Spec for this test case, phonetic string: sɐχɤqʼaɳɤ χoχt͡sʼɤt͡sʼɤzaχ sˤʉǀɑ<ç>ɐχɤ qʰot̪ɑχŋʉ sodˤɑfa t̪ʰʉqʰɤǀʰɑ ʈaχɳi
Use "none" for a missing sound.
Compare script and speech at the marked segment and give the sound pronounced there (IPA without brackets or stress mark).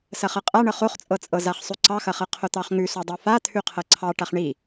x